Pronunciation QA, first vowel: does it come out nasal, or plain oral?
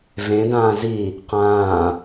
nasal